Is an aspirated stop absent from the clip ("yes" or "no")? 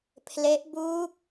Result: no